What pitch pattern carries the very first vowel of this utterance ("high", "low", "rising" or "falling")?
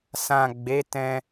low